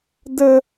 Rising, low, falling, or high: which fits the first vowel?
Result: high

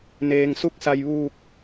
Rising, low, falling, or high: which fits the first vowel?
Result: low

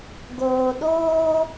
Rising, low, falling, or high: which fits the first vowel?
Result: low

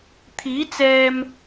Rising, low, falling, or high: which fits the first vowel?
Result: rising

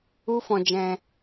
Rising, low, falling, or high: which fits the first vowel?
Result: high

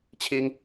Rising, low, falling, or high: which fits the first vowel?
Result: high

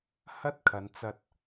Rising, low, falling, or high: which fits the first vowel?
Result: high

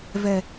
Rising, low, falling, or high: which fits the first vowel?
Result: high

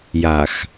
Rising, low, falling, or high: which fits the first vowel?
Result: low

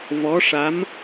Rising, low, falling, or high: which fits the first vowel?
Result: rising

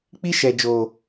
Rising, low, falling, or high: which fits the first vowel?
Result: high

